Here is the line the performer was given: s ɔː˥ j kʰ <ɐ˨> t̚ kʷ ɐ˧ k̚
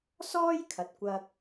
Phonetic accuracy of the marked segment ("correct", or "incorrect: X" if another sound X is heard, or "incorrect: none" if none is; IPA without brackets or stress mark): correct